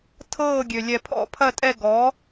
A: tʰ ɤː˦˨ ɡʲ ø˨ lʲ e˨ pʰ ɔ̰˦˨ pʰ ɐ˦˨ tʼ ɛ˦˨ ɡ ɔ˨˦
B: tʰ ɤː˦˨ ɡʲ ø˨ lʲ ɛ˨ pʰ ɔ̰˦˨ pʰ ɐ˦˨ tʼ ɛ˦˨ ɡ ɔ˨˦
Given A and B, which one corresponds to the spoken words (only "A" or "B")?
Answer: B